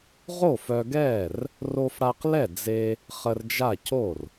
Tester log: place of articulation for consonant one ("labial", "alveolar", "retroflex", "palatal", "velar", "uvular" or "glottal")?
uvular